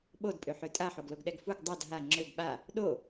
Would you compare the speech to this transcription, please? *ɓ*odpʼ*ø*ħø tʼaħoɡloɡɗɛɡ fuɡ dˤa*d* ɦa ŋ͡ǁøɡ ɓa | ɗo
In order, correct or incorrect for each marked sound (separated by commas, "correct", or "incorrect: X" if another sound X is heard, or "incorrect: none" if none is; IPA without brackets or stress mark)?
correct, correct, correct